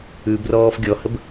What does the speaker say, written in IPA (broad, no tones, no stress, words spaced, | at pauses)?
ʉbrɔːf ɡʲɔhəb